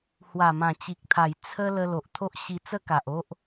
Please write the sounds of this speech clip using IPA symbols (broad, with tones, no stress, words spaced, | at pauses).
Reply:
hwa˨˩mã˨˩t͡ɕi˨k̚t̪ʰa˨˩j t͡sʰə˦ lə˧ lo˨ʔt̪ʰo˦ʔɕi˧ t͡sə˦ka˨ʔo˦ʔ